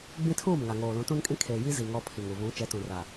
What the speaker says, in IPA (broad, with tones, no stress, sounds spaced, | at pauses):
ɡ͡b ĩ˦ tʰ uː˦˨ m ŋ a˨ ŋ oː˨ l ũ˨˦ t ũ˦ n kʼ ĩ˦ kʰ eː˨ j i˦ z i˨ ŋ ɔ˦ pʰ i˨ ŋ u˨ β ũ˨˦ t͡ʃ ɛ˨˦ t ũ˨ r a˨